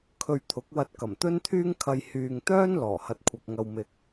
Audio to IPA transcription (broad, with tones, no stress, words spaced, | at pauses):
kʰɵ˧ɥt̪ʰʊ˨˥k̚wɐ˧t̚ kɐ˨˩mt̪ɵ˥nt̪ʰyː˥ŋkʰɐ˧j hyː˨ŋt̪œː˥n lɔː˨˩hɐ˧t̚kʷʰɐ˨k̚ŋɐ˧w mɪ˨k̚